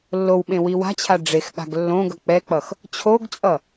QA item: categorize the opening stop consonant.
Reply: implosive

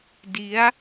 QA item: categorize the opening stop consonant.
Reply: plain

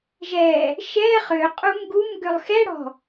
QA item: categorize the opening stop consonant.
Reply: ejective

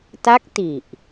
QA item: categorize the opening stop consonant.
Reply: plain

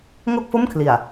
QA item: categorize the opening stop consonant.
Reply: plain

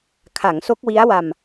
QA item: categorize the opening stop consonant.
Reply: aspirated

